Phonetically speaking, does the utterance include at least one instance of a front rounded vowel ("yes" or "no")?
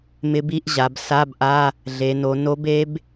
no